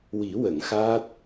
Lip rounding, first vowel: unrounded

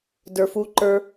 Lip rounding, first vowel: unrounded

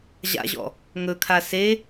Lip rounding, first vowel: unrounded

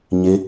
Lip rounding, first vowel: unrounded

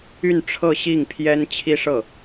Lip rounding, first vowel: rounded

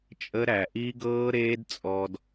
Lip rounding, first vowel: unrounded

